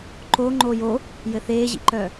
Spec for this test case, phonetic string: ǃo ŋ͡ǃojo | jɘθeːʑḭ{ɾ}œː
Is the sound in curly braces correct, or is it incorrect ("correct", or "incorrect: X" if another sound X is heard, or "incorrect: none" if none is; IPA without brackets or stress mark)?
incorrect: ǃ